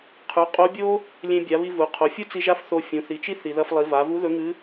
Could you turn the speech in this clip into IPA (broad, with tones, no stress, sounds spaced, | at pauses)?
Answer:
qʰ ʉ˩˧ qʼ o˧˥ bʲ o˥ | lʲ ẽ˧ bʲ a˩˧ β i˧ v u˩˧ qʰ o˩˧ fʲ u˥ t͡s i˧ ʒ a˥ f θ o˧ fʲ ũ˩˧ θ i˩˧ t͡ʃ i˥ θ i˩ ð ɐ˧ f lˠ i˩˧ v a˩˧ v u˧˥ ð ɵ˧˥ ŋ ɨ˧˥